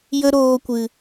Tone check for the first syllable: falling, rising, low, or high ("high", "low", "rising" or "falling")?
high